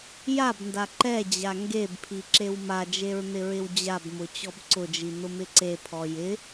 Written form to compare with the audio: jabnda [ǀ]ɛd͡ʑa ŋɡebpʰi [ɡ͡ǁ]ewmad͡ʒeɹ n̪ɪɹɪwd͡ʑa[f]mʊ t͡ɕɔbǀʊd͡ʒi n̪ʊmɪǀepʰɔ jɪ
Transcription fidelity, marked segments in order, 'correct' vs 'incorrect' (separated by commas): incorrect, incorrect, incorrect